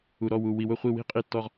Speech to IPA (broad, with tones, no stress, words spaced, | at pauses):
u˨ɾɔ˦˨wu˨ wi˨wʊ˦˨χʷi˦˨wi̤˦ qʼi˦tːɔ˦ʁ